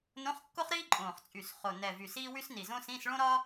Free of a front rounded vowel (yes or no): no